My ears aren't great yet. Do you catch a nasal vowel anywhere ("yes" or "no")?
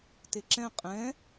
yes